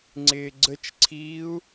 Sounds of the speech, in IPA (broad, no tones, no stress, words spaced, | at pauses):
ŋ͡ǀɪːɡ͡ǀət͡ʃǀʰiːu̯